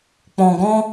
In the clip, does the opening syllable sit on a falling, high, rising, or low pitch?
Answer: low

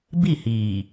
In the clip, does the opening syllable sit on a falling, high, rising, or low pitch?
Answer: falling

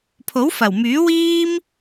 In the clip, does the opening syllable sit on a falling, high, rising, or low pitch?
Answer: rising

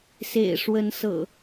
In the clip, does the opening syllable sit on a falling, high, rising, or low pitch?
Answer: low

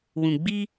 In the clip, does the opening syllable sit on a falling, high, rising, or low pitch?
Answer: low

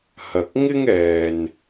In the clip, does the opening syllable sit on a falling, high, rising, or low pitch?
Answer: low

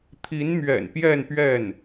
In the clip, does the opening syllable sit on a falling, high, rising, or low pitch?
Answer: rising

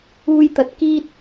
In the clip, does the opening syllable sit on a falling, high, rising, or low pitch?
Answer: high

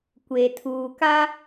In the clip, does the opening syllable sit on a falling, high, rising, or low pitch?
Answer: low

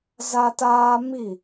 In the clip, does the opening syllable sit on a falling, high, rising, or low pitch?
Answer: high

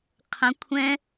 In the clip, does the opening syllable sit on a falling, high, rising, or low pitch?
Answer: rising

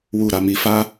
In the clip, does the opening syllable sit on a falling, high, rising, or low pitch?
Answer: low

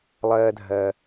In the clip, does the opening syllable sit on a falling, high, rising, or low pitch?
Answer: low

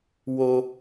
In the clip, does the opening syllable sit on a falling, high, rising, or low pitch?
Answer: high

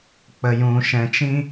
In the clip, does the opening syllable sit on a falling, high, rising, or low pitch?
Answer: low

